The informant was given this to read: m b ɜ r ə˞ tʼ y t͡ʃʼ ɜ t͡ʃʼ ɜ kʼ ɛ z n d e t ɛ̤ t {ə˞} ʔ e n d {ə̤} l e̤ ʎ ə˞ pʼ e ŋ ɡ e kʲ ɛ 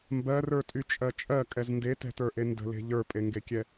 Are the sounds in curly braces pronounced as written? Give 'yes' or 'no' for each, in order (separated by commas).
yes, yes